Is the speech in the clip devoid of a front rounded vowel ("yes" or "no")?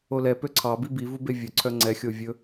no